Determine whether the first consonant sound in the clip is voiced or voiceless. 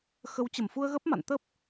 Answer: voiceless